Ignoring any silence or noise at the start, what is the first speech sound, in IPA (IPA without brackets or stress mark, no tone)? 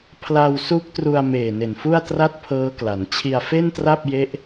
pʰ